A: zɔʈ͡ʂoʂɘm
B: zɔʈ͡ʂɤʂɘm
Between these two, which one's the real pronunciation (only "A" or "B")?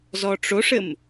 A